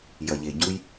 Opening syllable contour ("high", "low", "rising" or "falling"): low